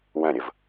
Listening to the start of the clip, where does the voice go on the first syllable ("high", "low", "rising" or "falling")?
falling